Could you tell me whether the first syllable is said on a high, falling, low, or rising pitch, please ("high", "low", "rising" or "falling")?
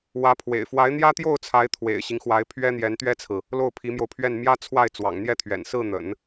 rising